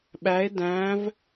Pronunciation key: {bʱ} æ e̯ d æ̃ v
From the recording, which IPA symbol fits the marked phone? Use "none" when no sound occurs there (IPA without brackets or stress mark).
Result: ɓ